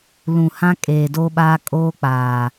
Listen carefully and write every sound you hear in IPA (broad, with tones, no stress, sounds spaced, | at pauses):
l ũ˨ h ã˦ kʼ eː˨ d oː˦ ɓ aː˦ kʼ oː˦ k͡p aː˨